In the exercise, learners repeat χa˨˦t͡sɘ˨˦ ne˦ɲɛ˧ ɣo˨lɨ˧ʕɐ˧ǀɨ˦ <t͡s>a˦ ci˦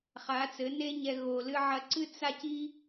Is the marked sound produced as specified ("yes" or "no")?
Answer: yes